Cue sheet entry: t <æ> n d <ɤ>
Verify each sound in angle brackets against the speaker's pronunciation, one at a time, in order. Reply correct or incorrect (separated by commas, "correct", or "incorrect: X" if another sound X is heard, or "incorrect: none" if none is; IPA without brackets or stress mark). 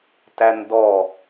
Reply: correct, incorrect: ɔ